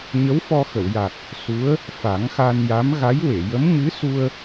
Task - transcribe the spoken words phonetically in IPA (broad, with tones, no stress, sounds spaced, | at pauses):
ɲ ə˧˥ w f ɔ˧ x ə˨˩˨ w j a˨˩ k̚ | s u˧˥ ə̯ | f a˨˩˦ ŋ x a˧ n j a˧˥ m ɣ a˧˥ j w e˨˩˨ j ə˧˥ m ɲ ɨ˧˥ s u˧ ə̯